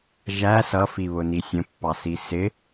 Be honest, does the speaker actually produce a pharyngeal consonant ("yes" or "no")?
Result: no